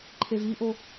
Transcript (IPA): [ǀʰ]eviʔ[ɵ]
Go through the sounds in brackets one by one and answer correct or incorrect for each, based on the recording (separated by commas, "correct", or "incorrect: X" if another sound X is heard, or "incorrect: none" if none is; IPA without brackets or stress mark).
incorrect: ǃʰ, incorrect: o